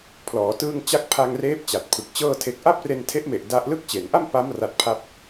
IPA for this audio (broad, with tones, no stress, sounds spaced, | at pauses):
pʰ l ɔː˩˦ t ɯː˧ ŋ t͡ɕ a˦˥ k̚ pʰ a˧ ŋ r eː˦˥ p̚ t͡ɕ a˨˩ t̚ pʰ ɯ˨˩ k̚ t͡ɕ ɤː˥˩ tʰ e˦˥ k̚ ʔ a˥˩ p̚ r e˧ n tʰ e˦˥ ʔ m e˨˩ ʔ d a˦˥ ʔ l ɯ˦˥ k̚ t͡ɕ e˩˦ n ʔ a˥˩ m p a˦˥ m r a˦˥ t̚ pʰ a˥˩ p̚